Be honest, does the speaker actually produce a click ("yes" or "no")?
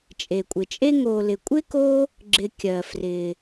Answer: yes